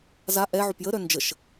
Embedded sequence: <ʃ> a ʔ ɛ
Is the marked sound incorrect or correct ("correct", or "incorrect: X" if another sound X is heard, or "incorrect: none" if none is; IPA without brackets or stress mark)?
incorrect: z